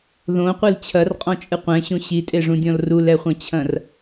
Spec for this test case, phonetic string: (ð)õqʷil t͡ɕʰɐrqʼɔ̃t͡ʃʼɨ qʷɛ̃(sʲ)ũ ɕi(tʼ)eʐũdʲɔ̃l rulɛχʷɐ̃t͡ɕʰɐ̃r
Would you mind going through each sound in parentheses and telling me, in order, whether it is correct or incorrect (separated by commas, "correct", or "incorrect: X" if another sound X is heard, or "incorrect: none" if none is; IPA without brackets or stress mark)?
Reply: correct, incorrect: ɕ, correct